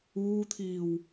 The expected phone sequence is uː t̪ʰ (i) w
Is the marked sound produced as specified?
no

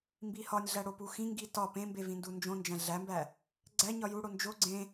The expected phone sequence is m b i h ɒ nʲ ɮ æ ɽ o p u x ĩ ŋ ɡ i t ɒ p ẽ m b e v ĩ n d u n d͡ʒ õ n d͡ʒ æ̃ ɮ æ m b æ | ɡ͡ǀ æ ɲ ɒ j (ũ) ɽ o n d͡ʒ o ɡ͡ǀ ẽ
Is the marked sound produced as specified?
no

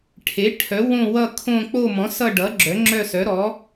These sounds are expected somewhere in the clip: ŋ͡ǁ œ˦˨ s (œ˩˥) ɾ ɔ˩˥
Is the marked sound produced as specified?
yes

